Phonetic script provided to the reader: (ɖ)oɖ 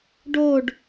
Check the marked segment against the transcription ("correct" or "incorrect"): correct